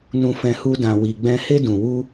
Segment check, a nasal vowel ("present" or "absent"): present